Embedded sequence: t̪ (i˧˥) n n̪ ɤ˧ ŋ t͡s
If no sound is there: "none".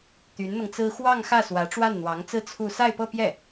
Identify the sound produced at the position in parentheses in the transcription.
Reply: y˧˥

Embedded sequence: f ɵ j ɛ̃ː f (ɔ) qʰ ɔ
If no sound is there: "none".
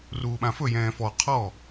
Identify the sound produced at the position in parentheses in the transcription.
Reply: ɔ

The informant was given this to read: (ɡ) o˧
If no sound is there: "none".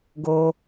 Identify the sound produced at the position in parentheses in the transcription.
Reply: ɡ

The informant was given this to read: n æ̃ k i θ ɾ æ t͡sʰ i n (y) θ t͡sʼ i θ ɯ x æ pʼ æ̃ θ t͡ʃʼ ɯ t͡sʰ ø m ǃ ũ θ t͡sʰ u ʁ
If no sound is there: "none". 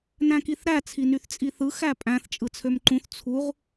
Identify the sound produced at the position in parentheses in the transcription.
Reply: y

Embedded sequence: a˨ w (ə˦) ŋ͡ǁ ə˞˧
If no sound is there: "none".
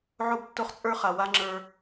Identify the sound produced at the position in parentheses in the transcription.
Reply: a˦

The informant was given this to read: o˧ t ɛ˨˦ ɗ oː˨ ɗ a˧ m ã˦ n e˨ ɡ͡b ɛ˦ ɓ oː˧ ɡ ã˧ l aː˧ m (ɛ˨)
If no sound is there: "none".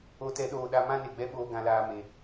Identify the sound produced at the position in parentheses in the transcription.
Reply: e˨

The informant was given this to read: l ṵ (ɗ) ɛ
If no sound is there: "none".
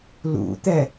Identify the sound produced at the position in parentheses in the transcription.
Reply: t̪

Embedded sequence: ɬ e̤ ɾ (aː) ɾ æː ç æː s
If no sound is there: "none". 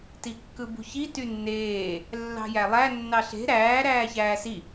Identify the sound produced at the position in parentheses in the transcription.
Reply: æː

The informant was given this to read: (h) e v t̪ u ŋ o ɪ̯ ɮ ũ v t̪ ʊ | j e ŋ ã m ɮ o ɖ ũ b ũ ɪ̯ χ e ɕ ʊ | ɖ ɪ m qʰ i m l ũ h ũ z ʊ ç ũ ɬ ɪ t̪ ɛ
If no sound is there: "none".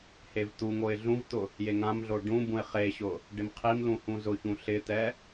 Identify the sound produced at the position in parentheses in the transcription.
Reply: h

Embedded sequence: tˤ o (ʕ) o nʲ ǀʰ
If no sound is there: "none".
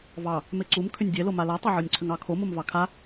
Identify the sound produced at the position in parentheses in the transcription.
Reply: ʕ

